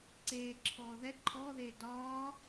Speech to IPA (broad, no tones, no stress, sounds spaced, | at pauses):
ǀ eː ǁʰ ɔː ð ɛ ǃʰ ɔː ð eː d ɒː